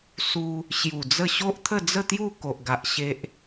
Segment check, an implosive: absent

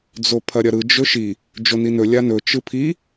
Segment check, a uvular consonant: absent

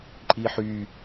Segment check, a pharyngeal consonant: present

